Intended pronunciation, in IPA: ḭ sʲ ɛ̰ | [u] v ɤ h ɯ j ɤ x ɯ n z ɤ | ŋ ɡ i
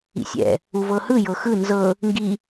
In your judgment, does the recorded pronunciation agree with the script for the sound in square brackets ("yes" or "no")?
yes